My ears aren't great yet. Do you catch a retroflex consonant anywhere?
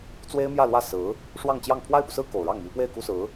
yes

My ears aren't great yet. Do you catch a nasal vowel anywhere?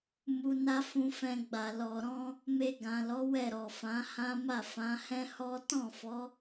yes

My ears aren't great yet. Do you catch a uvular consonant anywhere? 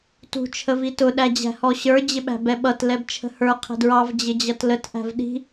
yes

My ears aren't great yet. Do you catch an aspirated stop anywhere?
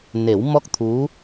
yes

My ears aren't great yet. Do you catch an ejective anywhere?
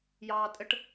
yes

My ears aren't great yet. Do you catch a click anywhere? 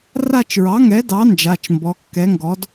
no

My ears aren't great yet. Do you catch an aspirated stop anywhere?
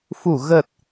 no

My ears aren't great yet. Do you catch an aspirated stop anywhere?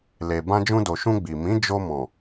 no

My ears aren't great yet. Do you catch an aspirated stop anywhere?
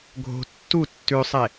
no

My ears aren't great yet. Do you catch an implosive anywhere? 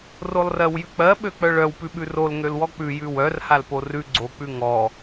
yes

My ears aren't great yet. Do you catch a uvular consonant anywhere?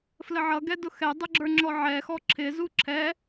no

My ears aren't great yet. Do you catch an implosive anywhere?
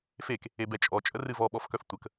yes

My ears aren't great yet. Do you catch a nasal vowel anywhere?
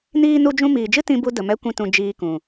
yes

